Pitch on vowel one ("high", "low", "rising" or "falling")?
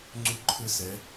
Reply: high